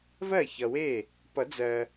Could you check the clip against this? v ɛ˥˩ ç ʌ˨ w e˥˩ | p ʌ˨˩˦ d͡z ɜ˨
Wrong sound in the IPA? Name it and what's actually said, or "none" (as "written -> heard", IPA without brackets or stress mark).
ɛ˥˩ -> ɜ˥˩